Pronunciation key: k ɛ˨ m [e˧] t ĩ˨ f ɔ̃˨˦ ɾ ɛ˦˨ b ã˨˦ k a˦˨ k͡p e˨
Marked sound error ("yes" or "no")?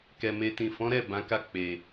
no